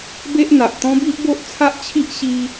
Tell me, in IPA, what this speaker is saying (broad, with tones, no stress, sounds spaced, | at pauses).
b e˦ ʔ n̪ a˨ ʔ t̪ ɔ̃˦ b i˦ ʔ b o˦ ʔ t͡sʰ a˦ ʔ t͡ɕʰ i˦ ʔ ɕ i˦